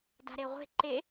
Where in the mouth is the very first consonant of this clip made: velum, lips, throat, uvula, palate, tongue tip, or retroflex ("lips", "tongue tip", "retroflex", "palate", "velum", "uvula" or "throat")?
tongue tip